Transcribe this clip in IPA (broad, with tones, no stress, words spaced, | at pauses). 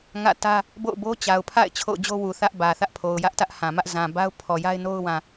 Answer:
ŋä̰˦˨tä˦ | bo̰˦˨ʊ̯bo˦ t͡ɕa˨ʊ̯pʰa̰˦˨ɪ̯ t͡ɕʰo̰˦˨ʊ̯d͡ʑo˦wu˨ θä˦ʔbä˨ θä˦ʔpʰo˨ʊ̯jä˦ʔtä˦ʔ hã˨mä˦ʔ zã˨ba˦ʊ̯ pʰɔ˨ja˦ɪ̯ no˦ʊ̯wã˨